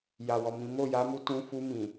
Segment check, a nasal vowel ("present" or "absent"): present